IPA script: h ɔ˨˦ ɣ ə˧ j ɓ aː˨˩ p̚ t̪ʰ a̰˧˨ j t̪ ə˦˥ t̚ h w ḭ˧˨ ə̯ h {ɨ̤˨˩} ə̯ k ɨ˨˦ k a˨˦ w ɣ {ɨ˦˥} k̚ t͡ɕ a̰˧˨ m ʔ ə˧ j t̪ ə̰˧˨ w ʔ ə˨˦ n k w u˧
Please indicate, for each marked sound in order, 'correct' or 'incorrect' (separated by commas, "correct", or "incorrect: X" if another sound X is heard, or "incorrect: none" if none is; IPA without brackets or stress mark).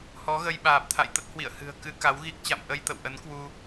correct, incorrect: i˦˥